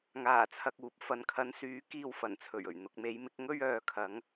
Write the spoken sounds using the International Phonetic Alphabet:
ŋaː˨˩t͡sʰɐ˨k̚uː˨p̚ fɐ˨nkʰɐ˨˧n syː˨˥ kiː˧wfɐ˨˩nt͡sʰɵ˨˩ɥɵ˨˩ɥ n̪ʊ˨k̚me˨˧jmɪ˧k̚ ŋɵ˧ɥœː˨kʰɐ˨˧ŋ

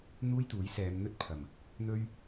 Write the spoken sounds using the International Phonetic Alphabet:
n̪uː˥jt̪uː˨˥j sɛː˨˧m n̪ɵ˥t̚pʰɐ˨˩m | n̪ɵ˥ɥ

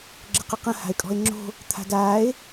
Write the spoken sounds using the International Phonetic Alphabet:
ɡ͡ǁəqəqə̃ ha̤e̯kʼɔ̤e̯ŋ͡ǁo̤ | t̪ʰa̤daːe̯

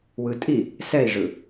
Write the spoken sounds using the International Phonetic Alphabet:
wɯtʼi | sɛi̯ʐɯ

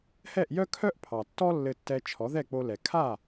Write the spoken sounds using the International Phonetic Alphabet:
hɛ˥˩ʔjœ˥kʰœ˥ʔ pʰɑ˩tːɔ˥ lːɘ˧tːɛ˧ t͡ʃʰɔ˩˥ðɛ˥˩k͡po˧ lɛ˩ kʰa˥˩

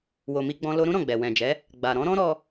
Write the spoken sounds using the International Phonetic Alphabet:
wo˨mi˧ɡ͡bɔ̃˧ lo˧ɾũ˦ɾɔ̃˦˨ɡ͡bɛ˨ wɛ̃˨d͡ʒɛ˨˦ | ɡ͡ba˨ ɾɔ̃˨˦ɾɔ̃˦ ɾɔ˧

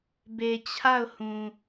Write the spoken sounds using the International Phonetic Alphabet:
be˨t͡ɕʰa˦˨ʊ̯hũ˨

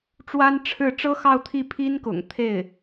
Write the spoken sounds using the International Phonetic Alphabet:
ʈ͡ʂwa˥nʈ͡ʂʰɻ̩˥˩ ʈ͡ʂɤ˥xɑ˥˧ʊ̯ t̪ʰi˥˩pʰi˥nkʊ̰˨˩ŋ t̪ʰe˥˩ɪ̯

